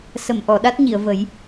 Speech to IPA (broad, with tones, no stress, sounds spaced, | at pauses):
s ə˨˩˨ m ʔ ɔ˨˩˨ ɗ a˦˥ t̚ ɲ i˨˩˨ ə̯ v ə˨˩˦ j